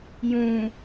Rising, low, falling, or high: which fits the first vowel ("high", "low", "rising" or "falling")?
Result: low